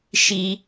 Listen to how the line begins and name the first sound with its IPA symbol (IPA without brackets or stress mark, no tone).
ʃ